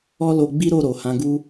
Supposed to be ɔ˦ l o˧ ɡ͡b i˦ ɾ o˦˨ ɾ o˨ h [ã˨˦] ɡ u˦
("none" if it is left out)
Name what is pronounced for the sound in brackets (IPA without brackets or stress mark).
ã˨˦